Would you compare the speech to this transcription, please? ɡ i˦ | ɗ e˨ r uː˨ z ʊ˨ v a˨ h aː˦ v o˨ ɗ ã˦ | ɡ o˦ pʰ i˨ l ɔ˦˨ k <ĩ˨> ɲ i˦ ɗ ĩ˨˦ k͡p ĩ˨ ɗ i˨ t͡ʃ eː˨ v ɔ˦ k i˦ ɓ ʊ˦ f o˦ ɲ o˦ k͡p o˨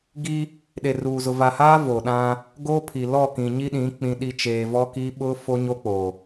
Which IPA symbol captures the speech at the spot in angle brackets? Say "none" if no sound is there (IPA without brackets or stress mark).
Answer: ĩ˨